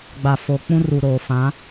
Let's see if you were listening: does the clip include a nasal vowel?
yes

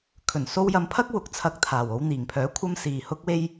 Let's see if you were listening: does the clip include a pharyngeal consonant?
no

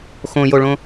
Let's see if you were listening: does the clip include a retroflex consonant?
yes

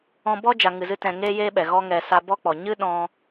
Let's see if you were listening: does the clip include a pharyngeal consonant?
no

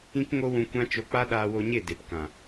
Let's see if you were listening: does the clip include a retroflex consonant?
no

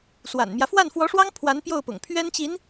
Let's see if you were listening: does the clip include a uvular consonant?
no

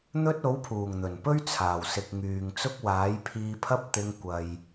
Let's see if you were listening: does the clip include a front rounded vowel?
yes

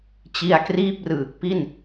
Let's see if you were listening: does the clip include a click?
no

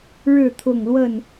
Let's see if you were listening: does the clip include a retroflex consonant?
yes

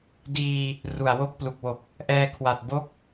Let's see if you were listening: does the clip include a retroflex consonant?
no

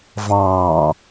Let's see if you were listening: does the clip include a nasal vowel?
yes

